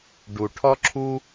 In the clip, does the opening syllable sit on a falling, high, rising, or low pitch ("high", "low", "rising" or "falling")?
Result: low